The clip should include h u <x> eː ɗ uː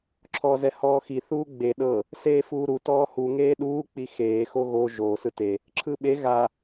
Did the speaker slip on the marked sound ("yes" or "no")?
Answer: yes